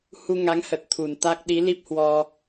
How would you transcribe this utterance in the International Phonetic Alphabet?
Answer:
h u˧ ŋ a˨˦ ŋ h ə˨˩ t̚ t̪ʰ u˨˩ n t̪ a˦˥ k̚ ɗ i˨˦ l i˦˥ p̚ h w ɔ˧

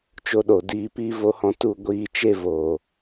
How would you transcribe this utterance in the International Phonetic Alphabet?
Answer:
t͡ʃ o˧ ɗ o˨ d iː˧ p iː˦ v o˦ h ɔ̃˦ t u˦˨ ɡʷ iː˦˨ t͡ʃ e˦ v oː˨

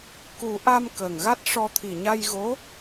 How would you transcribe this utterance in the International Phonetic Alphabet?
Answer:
k u˨˩˦ ʔ a˧ m k ə˨˩ ŋ ɣ a˦˥ t̚ ʂ ɔ˧ t̪ʰ i˨˩ ɲ a˧ j ɣ o˧˥

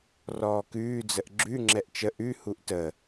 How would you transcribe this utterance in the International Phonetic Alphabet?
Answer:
r ɔː k ʉː d͡z ə ʔ ɡ͡ǁ ʉ ŋ͡ǁ ɛ ʔ t͡ʃ ə ʔ ʉ h u ʔ t ə

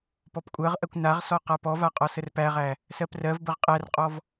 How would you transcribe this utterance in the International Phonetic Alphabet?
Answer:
p ɔ p kʷʼ ɜ ʁ ʔ ɜ kʷ n a ʁ s ɔ q a p ɔ v a qʼ ɔ s ə r p æ ʁ æ | s ɜ p r ɜ v b ə ʁ qʼ æ r qʼ ɔ v

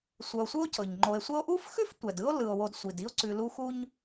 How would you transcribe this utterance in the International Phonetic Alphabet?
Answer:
sʷ œ˨ o̯ sʷ ɯ˦ o̯ cʰ ɤ˩ ɲ ŋ͡ǃ o˨ e̯ sʷ ə˦ o̯ ʔ u˥ f x ʉ˥ f tʷ ɛ˩ d ɯ˥ o̯ l ɯ˩ o̯ w o˨ d sʷ i˩ d i˦ o̯ ǀ ʉ˨ l u˦ x u˥ ɲ

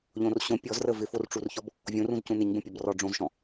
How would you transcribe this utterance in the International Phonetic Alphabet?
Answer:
ʎ õ r ɕ õ pʲ ɔ z r ə v ɪ f o r ʈ͡ʂ u r ç ɔ b | vʲ õ r ũ z c ũ n ɪ ɲ b ə̃ pʲ ɔ b r ɔ ɖ͡ʐ õ z ʃ ɔ̃

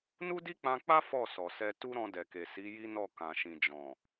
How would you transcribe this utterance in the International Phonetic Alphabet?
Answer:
n u˦ d i˦ k͡p ã˧ k͡p a˦ f ɔ˦˨ s ɔ˨ s ɛ˧ t u˦ ɾ ɔ̃˧ d ɛ˨ k e˨ s i˨˦ j i˦ n ɔ˦˨ k ã˨ ʃ ĩ˨ d͡ʒ ɔ̃˨

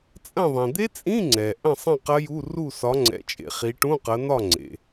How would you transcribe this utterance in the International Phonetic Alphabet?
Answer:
t͡sʼ ɐ̃˥˨ ðˤ ĩ˩ d̪ e˦˥ t͡sʼ ĩ˧˥˧ ŋ͡ǀ ɛ˩ ʔ ɐ̃˥˨ sˤ ɐ̃˥˨ q ɐ˦˥ j u˧˥˧ r u˥˨ s ɒ˨˦ ŋ͡ǀ ɛ̰˨˦ t͡ʃʼ ḛ˩ χ i˨˦ ʈ ũ˧˥˧ q ɐ˨˦ n̪ ɒ˥˨ ŋ͡ǀ ḛ˩

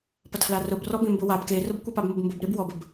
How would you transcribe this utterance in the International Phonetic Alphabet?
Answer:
p ɐ tʰ l a r ʊ b r ɔ b ẽ m b ʊ w a b k e r ʊ b kʷ i p a b m ʊ b m b ʊ b ɾ e b w ɔ b ə b

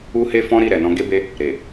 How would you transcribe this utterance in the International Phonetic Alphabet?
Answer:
u˧ h e˦ f ɔ̃˦ ɾ i˦˨ ɾ ɛ˨ n ɔ̃˧ ɡ e˦ b e˦ | ɾ e˨

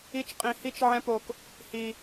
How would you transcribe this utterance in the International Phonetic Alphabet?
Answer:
i˦ t͡ʃ qʼ ĩ˧ h i˦ t͡ʃ ʕ ɛ̃˦ p o˧ k | h i˧

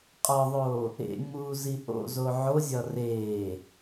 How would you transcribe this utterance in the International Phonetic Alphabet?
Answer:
qʼ ɒ ðˤ oː | ḛ ŋ͡m uː z i ʔ o̰ z o ʕ o zʲ ɒ r eː

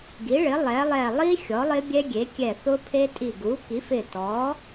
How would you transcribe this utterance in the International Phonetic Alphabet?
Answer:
ɡ i˩˥ ɭ ɪ˩˥ lˠ ɛ˩˥ lˠ ɛ˧˩ lˠ i˦˥ xʲ ɔ˩˥ lˠ ɪ˦˥ bʲ ɛ˦˥ ɡʲ e˩˥ kʲ ɛ˧˩ θ ʊ˦˥ pʰ e˦˥ tʼ i˧˩ ɡ u˩˥ k i˩˥ f ɪ˧˩ t ɔ˩˥

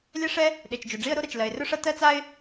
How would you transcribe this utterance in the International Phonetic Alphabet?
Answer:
lʲ ɛ˥ ʂ ɛ˥ | ɗ e˩ t͡ʃ d͡ʒ ɵ˩ ɖ͡ʐ i˥ ə̯ ɾ o˥ ɾ ɐ˩ t͡ʃ l ɜ˩ ɪ̯ r ɵ˥ ʂ ɐ˥ t ɜ˥ t͡s a˥ ɪ̯

